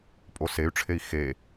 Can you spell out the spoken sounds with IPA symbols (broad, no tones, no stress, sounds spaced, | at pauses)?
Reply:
pʼ o s e y̯ ʈ͡ʂʰ e i̯ x e